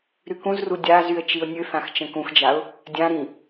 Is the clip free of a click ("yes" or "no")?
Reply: yes